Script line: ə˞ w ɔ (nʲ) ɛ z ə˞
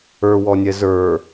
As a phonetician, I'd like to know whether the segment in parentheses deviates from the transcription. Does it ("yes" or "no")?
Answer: no